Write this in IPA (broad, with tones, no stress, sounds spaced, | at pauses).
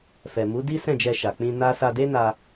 f ɛ˨ m u˨˦ d i˦ s ɛ̃˦˨ d͡ʒ ɛ˧ ʃ a˨ k͡p ĩ˧ n a˦ s a˧ d e˦ n a˧